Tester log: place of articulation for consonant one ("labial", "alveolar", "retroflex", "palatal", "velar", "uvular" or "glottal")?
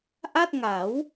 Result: glottal